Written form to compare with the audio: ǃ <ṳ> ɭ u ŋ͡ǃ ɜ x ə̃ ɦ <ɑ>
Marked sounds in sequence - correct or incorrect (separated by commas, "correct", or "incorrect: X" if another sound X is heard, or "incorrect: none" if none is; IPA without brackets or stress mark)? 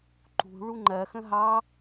correct, correct